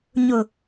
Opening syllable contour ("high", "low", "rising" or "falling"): low